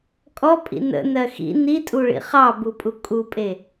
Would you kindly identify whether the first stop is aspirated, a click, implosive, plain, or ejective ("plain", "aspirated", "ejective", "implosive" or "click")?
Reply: ejective